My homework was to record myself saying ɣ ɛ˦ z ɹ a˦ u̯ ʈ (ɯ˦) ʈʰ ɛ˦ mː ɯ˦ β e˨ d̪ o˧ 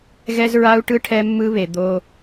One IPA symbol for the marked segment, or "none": ɯ˦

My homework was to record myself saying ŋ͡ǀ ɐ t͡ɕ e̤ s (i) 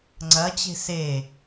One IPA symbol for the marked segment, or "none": e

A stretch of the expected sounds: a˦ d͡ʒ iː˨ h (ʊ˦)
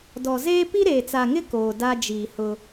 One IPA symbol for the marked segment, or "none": ʊ˦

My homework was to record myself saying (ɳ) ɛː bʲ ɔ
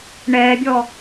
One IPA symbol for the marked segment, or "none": ɳ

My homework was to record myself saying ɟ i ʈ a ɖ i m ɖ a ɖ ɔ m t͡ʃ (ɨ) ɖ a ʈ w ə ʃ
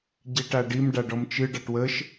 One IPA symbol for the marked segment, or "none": ɨ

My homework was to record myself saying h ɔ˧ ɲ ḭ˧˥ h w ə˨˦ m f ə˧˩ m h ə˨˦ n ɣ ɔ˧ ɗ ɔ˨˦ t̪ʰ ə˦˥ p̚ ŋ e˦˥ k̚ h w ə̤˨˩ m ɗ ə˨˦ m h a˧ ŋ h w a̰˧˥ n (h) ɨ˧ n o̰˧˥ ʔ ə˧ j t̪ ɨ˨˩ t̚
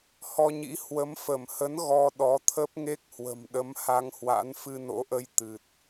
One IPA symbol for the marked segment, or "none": f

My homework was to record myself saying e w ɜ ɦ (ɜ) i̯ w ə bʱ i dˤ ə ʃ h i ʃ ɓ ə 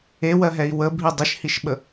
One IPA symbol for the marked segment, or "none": ɛ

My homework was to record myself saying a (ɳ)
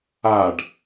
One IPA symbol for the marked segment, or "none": ɖ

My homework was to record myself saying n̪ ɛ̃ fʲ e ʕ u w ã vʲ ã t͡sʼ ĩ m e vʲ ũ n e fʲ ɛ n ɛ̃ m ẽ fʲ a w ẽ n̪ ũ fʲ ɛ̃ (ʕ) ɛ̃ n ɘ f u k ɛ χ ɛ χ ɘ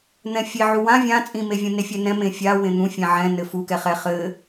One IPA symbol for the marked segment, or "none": ʕ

